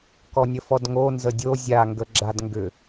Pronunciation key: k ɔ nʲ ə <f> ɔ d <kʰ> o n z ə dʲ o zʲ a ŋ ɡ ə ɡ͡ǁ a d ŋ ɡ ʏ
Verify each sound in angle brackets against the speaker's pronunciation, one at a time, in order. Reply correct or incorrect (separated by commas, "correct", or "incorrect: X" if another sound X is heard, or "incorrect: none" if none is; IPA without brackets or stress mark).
correct, incorrect: ŋ